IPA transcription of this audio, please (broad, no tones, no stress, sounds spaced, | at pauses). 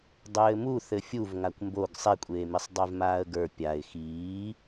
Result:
dˤ ɘː m u θ ɘ fʲ u v ŋ a kʷ m b o ɡ sˤ e kʷʼ eː m i sˤ dˤ e v m aː ə̯ ɡ ə˞ pʲ a ɪ̯ x iː